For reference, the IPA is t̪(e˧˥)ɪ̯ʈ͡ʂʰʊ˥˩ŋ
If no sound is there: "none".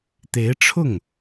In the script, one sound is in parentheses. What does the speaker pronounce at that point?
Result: e˧˥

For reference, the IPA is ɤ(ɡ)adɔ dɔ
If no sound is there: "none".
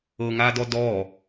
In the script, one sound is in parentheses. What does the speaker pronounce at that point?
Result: ŋ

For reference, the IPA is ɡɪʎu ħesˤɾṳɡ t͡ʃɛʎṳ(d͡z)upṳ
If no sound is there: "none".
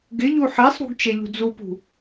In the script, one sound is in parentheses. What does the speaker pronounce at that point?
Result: d͡z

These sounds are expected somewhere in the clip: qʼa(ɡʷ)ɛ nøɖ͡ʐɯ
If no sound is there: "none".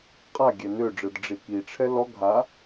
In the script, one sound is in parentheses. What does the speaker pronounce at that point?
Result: ɡʲ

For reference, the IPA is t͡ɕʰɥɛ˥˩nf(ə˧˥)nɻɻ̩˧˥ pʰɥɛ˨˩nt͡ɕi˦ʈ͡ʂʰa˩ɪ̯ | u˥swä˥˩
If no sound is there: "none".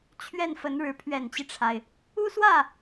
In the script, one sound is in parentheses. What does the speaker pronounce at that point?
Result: ə˧˥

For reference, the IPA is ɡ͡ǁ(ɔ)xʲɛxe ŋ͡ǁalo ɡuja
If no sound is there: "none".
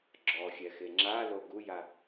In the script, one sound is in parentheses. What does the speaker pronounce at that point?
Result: ɔ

